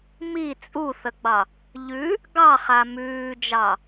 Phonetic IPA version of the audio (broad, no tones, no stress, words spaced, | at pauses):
mi t͡sʼuθəɡ͡bɑ | ʎʉ | ɡɑχa mʉːd͡ʒɑ